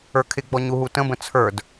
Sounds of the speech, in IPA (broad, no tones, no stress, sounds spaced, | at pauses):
ə˞ kʰ ɪ ɡ͡b ɔ ɲ u ɦ u t ə̃ b ə̃ t͡sʰ ə˞ d